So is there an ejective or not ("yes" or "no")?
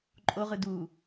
yes